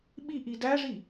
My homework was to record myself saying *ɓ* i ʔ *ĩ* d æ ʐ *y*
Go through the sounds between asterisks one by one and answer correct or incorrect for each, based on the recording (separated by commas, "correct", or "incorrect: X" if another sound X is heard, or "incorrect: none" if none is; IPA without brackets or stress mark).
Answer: correct, incorrect: i, incorrect: i